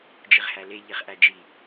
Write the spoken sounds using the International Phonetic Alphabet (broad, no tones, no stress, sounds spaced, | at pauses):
d͡ʒ i ʁ h æ l e ʎ i χ ʔ æ d͡ʒ i